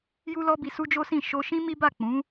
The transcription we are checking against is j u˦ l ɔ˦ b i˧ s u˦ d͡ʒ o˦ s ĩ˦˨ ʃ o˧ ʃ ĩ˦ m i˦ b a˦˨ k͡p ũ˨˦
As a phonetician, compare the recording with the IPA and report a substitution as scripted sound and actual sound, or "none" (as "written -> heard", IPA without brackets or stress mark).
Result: none